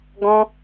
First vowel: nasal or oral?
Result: nasal